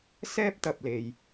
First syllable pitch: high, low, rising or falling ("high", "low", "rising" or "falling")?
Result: high